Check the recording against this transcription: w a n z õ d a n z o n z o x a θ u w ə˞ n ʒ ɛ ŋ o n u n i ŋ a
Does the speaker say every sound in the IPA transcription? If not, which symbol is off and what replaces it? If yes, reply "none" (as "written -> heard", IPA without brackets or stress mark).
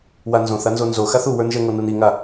d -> θ